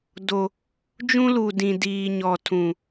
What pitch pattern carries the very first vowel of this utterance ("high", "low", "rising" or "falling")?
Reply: low